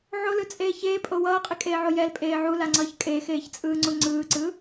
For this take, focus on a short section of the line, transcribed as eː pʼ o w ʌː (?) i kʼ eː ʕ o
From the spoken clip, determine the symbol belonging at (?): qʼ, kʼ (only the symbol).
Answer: qʼ